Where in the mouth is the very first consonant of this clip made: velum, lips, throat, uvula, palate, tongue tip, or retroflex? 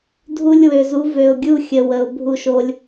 tongue tip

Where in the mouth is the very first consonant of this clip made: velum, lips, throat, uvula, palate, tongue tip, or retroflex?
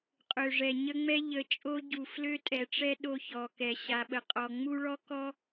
uvula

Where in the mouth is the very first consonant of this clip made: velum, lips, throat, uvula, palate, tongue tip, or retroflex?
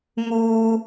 velum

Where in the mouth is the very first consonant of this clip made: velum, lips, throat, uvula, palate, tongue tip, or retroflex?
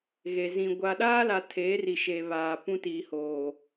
velum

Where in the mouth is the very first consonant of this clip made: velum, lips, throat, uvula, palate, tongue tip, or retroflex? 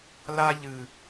tongue tip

